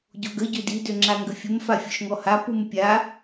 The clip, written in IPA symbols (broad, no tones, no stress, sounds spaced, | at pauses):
ɟ o ɡ ə ɟ ø d i d ø ŋ͡ǁ a ŋ ɡ ə fʲ ə m f a fʲ ɔ ʃ ŋ ɔ h a p u m pʲ a